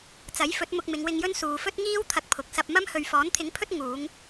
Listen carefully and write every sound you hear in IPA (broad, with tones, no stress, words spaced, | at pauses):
t͡sɐ˨˥jfɵ˨˥t̚ mʊ˧k̚mɪ˨˧ŋwɪ˧ŋjɵ˥n suː˨fɵ˥t̚ŋiː˥w t̪ʰɐ˧k̚pʰʊ˨˥k̚ sɐ˧p̚mɐ˥m hɵ˨ɥfɔː˨˥nt̪ʰɪ˨˥ŋpʰɵ˥t̚ ŋuː˨˧ŋ